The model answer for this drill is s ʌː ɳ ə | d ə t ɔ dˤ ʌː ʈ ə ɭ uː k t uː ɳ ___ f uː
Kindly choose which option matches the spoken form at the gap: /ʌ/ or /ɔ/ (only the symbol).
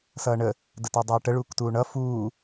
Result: ʌ